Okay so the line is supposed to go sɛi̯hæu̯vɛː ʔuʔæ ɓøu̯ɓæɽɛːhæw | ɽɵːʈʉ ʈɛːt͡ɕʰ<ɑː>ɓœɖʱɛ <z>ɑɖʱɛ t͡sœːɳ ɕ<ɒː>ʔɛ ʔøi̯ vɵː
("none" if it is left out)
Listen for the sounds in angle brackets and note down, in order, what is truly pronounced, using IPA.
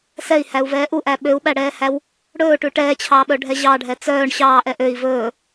ɑː, ʑ, ɑː

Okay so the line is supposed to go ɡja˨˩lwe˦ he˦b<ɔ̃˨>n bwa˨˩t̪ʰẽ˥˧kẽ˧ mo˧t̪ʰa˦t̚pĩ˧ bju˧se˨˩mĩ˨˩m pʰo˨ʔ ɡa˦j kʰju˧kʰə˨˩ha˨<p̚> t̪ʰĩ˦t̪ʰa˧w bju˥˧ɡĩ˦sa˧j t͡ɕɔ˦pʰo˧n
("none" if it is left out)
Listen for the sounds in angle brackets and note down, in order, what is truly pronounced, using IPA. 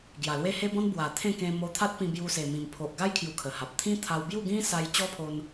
ɔ̃˦, p̚

